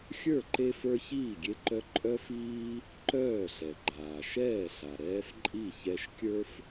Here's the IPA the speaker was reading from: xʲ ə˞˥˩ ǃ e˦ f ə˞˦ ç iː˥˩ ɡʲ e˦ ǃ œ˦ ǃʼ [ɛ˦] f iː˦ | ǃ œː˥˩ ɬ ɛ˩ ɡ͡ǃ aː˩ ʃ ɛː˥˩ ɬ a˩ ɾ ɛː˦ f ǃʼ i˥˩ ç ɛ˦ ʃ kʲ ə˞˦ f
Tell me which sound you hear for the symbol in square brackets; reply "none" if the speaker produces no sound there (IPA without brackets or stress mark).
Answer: œ˦